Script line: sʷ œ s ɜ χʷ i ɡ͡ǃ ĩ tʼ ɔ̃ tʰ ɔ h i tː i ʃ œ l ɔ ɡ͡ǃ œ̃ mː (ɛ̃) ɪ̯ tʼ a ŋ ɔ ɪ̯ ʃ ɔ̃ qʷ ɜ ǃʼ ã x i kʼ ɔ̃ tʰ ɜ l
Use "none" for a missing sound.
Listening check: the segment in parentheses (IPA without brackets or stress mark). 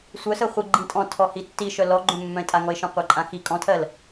œ̃